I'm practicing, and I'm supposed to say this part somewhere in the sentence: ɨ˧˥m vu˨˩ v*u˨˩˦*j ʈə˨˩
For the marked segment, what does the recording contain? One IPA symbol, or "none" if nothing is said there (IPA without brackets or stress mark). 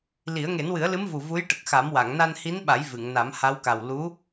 u˧˥